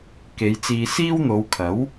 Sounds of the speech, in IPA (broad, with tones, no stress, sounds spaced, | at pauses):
k e˨˧ j t͡s iː˧ s iː˥ w n̪ o˨˧ w kʰ ɐ˨˥ w